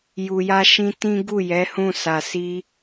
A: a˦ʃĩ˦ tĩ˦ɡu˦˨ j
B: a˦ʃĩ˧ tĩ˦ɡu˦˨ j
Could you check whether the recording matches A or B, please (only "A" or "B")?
A